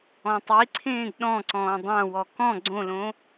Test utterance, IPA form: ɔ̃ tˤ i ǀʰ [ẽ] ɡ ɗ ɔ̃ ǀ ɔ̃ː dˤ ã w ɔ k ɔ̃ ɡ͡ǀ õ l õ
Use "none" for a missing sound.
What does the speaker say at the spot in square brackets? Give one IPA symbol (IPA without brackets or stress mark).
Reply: ẽː